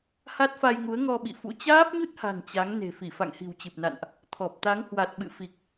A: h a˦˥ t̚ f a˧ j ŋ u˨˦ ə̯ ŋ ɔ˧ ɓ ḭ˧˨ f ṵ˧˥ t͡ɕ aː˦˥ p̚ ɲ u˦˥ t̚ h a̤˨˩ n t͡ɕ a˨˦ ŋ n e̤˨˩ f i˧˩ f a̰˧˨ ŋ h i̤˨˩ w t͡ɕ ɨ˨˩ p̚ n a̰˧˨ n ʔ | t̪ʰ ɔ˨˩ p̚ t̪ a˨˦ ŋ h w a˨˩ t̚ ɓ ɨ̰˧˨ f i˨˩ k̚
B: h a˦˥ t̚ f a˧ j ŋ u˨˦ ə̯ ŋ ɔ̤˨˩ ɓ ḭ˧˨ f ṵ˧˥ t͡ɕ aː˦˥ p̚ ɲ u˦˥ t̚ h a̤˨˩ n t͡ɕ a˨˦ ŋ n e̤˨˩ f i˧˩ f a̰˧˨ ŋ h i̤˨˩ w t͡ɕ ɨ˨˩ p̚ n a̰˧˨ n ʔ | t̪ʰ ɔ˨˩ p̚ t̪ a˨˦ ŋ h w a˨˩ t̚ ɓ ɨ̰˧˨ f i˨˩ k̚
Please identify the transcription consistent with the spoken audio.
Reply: A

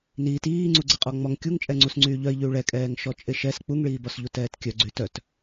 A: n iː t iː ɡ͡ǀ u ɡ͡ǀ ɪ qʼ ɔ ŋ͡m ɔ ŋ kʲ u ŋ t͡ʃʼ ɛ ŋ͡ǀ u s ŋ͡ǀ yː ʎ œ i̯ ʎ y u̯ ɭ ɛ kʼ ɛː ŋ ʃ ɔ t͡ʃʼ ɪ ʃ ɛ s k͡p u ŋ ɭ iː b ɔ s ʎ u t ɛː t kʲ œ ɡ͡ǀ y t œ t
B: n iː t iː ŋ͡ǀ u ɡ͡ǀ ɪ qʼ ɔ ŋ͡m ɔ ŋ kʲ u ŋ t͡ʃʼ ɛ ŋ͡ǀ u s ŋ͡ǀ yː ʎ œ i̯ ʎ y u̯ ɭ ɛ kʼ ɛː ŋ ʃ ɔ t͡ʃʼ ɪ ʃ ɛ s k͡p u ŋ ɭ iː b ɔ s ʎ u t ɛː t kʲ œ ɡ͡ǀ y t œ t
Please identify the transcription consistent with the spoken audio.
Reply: B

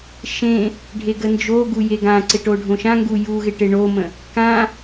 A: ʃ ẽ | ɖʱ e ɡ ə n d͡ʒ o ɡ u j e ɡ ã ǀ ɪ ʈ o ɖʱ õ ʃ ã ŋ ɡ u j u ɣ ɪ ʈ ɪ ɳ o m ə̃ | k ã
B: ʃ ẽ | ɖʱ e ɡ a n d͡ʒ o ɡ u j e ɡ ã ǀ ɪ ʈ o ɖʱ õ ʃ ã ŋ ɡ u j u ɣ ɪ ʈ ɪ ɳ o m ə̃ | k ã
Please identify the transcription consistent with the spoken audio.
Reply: A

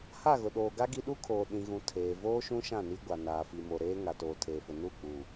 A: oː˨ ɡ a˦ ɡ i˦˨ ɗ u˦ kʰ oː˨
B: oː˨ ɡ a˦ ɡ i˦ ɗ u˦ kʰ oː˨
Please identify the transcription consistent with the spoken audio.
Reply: B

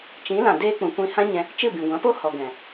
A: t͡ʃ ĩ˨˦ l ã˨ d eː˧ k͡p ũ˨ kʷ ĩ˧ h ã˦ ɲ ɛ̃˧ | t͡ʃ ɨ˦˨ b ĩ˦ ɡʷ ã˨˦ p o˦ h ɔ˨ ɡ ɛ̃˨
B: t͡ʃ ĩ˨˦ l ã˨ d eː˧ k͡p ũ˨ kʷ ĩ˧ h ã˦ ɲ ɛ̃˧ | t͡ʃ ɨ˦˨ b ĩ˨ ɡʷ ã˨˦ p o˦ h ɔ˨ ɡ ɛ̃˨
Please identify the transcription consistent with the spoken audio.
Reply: B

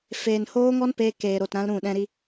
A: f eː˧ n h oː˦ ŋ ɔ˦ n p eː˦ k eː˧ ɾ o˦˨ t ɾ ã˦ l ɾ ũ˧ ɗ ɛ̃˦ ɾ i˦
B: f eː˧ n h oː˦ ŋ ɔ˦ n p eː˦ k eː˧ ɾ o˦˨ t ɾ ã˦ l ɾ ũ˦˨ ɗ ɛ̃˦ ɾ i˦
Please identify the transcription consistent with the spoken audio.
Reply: B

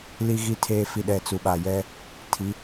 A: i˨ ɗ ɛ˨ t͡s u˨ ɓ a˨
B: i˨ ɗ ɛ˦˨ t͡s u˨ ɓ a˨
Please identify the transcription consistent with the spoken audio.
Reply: A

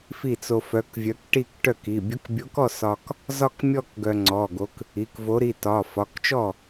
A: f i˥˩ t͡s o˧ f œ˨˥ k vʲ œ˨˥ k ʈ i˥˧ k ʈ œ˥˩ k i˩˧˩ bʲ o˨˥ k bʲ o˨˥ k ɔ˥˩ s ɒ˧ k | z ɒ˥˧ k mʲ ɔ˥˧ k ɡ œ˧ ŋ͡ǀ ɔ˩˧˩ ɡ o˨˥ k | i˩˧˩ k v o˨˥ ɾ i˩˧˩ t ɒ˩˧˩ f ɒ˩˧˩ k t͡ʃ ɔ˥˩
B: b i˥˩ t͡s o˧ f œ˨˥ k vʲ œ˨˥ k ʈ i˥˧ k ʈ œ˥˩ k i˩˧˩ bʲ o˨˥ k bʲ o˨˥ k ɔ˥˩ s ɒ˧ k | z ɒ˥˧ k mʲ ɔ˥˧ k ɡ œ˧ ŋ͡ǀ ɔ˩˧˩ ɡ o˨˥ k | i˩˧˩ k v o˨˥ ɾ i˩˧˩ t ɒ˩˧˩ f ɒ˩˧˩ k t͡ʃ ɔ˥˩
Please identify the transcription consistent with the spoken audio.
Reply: A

